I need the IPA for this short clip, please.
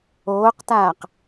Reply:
oː q t aː q

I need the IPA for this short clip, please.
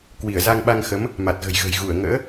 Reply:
k w i˧˩ ə̯ z a˧ ŋ ɓ a˧ ŋ x ə˨˦ m | m a˨˩ t̚ ɣ ə̤˨˩ j ɣ ə̤˨˩ j ɣ u˧˩ ə̯ ŋ ə̰ː˧˥

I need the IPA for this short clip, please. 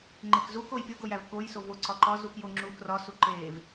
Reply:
ŋ͡ǃ e k z u k o j pʲ o ɡ o j æ v k o j s o v o ǀ ɒ ǃ ɒ z u k j o ŋ͡ǁ u k r ɒ s u ǃ e v

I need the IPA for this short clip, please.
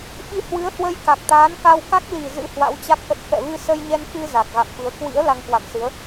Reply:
ɓ i˧ h w ɨ˨˦ ə̯ h w ə˧ j k a˨˩ k̚ t̪ aː˨˦ n k a˧ w k a˦˥ k̚ l i˨˩ z ɨ̰˧˥ h w a̰˧˥ w t͡ɕ a˦˥ k̚ ʔ ə˦˥ t̚ f ɛ̰˧˨ v ɨ˧ s ə˧ j ɲ ɛ˧ n k ɨ˧ z a˨˩ k̚ ɣ a̰˧˨ m f ɨ˨˦ ə̯ k w ḭ˧˥ ə̯ l a˧ ŋ k w a̰˧˨ m s ɨ˨˦ ə̯

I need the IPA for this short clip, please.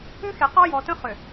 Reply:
ʏ˦ x e˨ q ɔ˦ j ɔ˨ t ə̃˦ χ ʏ˨

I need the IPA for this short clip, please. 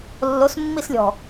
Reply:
lː o s mː i s lʲ ɔ̤

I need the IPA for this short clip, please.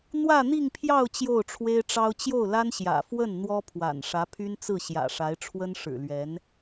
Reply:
n̪ w ä˥˧ n̪ i˥˧ ŋ pʰ j ɑ˥˧ ʊ̯ t͡ɕ j o˥˩ ʊ̯ ʈ͡ʂʰ w e˥ ɪ̯ ʈ͡ʂ ɑ˥ ʊ̯ t͡ɕ j o˥˩ ʊ̯ l a˥ n ɕ j ä̰˨˩ f w ə˥˩ n n̪ w ɔ˥ pʰ w a̰˨˩ n ʂ ä˧˥ pʰ y˥ n t͡s ɹ̩˥˩ ɕ j ä̰˨˩ ʂ a˧˥ ɪ̯ ʈ͡ʂʰ w ə˥ n ʂ ɻ̩˨˩ l ɥ ɛ˧˥ n

